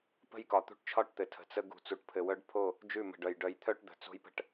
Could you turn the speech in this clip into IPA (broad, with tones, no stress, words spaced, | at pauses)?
pə̤˦j kɒ˨ t̪ṳ˦ʈt͡ʃʰɒ˦ʈt̪ɘ˨ tʰə̤˨t͡sə˦ ɡṳ˨t͡su˨ʈ pʰɘ˨wœ˦ɖpʰo˦˨ | d͡ʒʉ˦˨mə̤˨ɖœ˨j ɖœ˨jt̪ʰœ˦ʈ d̪ə̤˨t͡so̤˦jpə̤˦ʈ